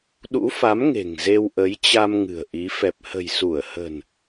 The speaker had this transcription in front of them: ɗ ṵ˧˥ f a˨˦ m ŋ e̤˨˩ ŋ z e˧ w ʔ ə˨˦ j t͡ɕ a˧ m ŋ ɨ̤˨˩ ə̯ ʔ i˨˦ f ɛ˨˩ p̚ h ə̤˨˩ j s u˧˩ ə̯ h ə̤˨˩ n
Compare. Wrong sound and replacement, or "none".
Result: none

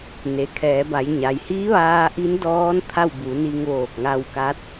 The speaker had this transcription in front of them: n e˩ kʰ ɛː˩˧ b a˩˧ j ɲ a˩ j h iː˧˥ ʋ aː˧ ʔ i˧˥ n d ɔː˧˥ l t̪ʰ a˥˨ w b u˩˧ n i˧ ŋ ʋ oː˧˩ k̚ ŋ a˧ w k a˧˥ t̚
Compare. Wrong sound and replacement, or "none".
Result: l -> n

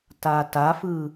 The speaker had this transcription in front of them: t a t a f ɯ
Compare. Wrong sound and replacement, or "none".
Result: none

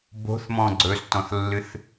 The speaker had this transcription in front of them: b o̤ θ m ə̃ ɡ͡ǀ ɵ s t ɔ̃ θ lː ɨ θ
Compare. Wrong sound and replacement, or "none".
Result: ə̃ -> ɔ̃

